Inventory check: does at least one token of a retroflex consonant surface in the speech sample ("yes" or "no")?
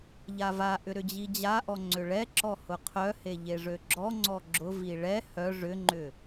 yes